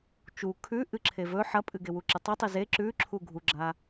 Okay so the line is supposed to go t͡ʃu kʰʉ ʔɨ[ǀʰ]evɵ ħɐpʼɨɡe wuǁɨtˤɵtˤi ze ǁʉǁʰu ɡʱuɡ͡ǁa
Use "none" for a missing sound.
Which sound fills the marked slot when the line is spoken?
ǁʰ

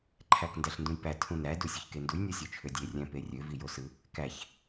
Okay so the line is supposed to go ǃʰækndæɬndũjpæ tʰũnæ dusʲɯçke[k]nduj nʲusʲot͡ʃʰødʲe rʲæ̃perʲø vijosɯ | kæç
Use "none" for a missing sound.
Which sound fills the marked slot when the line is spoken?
none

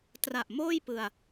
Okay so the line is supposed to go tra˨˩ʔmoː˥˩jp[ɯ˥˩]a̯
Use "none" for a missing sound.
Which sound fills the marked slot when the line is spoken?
ɯ˧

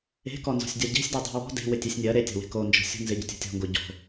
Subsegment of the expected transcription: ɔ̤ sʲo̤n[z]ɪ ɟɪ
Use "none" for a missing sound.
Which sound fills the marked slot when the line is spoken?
z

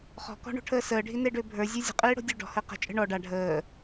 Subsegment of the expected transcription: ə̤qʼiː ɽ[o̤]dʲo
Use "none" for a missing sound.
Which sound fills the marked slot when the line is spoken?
o̤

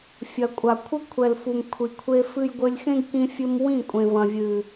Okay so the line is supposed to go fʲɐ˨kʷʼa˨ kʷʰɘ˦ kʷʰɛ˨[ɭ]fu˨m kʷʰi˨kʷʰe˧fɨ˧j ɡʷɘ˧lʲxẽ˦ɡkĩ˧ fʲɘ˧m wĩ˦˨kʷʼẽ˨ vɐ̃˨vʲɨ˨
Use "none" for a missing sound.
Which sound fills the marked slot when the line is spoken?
l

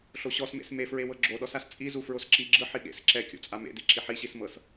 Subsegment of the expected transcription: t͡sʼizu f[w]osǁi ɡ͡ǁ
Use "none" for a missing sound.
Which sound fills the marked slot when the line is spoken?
ɹ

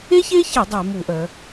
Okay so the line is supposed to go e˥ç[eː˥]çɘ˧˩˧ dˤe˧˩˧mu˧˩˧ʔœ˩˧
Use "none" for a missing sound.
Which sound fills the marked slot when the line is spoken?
e˥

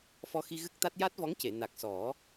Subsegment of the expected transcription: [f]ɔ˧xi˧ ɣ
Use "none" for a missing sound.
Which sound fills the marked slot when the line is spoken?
f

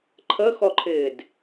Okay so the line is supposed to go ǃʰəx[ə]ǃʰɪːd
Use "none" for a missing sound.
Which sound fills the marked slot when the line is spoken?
ɔ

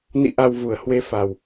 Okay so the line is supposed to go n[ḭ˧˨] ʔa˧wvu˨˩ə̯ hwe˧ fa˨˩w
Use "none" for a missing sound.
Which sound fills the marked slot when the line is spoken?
ḭ˧˨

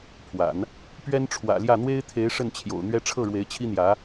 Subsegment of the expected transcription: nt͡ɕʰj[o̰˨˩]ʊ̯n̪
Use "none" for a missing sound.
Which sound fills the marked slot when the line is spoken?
o̰˨˩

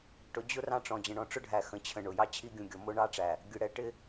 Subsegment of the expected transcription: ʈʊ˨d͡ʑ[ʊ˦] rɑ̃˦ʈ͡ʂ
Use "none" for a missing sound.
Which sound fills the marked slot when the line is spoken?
ʊ˦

